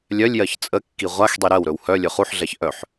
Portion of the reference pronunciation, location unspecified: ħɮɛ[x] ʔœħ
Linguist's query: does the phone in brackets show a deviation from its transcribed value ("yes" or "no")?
yes